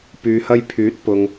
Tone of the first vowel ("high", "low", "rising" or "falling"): low